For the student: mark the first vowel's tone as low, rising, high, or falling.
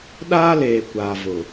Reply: high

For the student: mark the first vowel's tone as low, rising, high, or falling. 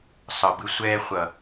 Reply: low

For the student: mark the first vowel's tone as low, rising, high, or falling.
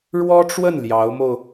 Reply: high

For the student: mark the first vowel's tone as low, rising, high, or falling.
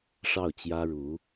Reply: falling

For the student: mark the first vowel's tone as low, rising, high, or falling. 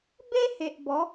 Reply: high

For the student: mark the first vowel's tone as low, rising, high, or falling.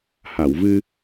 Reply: low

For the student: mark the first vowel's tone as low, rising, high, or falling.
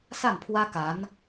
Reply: falling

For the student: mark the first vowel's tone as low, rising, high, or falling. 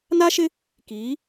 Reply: high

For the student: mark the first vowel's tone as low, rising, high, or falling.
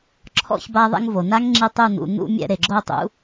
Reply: falling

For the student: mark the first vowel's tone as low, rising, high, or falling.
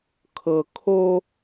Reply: low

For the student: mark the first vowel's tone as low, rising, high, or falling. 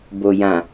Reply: low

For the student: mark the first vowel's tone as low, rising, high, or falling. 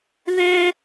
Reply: high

